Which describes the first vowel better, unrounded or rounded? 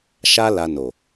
unrounded